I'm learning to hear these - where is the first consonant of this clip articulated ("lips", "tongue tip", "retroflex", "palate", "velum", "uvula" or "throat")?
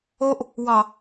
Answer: throat